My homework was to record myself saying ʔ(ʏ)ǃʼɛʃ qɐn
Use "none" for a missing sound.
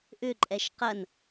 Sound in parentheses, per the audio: ʏ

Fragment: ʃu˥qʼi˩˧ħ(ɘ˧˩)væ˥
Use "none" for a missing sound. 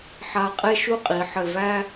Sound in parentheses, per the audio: ɘ˧˩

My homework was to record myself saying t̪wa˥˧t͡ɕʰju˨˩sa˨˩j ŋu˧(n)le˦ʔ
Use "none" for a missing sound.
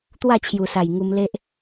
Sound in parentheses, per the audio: m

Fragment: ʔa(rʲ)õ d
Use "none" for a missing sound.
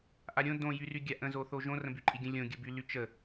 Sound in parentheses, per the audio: ɾʲ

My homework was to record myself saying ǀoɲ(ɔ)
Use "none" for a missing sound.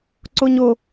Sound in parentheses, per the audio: o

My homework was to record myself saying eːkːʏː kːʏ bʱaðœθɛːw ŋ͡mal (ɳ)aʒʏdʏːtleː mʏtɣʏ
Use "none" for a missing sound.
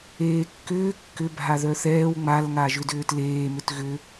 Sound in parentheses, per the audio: ŋ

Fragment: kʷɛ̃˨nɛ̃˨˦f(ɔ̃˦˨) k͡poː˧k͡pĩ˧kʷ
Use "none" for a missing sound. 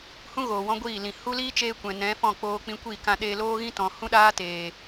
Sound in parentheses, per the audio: ɔ̃˦˨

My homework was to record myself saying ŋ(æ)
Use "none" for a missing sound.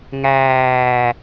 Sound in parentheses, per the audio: æː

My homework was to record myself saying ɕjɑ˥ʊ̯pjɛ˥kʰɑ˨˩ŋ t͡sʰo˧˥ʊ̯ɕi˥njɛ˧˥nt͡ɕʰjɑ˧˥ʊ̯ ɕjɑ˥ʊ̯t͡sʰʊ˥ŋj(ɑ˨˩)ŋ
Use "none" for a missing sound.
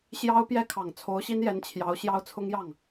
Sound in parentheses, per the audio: ɑ˥˩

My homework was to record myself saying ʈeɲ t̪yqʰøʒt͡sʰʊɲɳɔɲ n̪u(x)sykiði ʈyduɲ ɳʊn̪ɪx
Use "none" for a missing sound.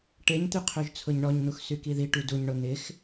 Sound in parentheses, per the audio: x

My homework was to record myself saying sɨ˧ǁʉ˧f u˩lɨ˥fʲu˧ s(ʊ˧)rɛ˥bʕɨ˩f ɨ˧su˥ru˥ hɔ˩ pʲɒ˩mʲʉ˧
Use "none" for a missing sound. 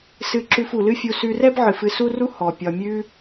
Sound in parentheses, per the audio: ʉ˧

